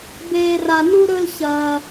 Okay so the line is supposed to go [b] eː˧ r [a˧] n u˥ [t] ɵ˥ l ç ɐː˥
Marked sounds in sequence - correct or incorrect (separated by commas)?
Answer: correct, correct, incorrect